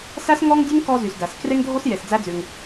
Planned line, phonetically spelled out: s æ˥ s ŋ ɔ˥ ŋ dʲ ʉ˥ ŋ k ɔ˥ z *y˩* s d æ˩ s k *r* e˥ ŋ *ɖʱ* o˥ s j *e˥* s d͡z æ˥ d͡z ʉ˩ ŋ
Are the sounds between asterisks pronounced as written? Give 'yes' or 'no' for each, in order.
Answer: yes, yes, no, no

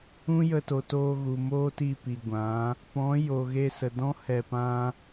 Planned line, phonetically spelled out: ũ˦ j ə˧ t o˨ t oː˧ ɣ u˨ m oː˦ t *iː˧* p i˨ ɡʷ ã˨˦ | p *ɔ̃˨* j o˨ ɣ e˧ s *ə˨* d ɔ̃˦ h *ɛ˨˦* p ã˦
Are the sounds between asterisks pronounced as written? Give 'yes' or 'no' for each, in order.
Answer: no, no, yes, no

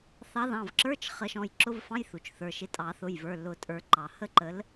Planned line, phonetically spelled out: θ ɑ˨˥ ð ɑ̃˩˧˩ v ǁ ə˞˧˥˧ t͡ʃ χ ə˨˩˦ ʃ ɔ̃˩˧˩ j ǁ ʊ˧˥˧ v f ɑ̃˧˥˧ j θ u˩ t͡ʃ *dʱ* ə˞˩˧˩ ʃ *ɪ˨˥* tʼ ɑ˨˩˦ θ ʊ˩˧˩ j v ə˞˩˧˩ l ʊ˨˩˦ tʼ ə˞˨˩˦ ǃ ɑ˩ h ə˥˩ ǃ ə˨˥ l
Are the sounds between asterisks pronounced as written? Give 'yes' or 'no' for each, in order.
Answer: no, yes

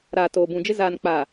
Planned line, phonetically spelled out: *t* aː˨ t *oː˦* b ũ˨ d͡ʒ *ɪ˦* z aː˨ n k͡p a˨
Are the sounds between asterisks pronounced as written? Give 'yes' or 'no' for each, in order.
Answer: no, no, yes

